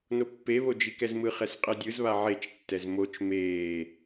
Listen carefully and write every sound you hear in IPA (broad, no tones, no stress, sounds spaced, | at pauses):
n o pː e β o d͡ʒ i k ɛ z m ɯ χ ɛ s qʼ ɛ dʲ ɯ z β a ʕ e t͡ʃ tː ɛ z m o t͡ʃ m eː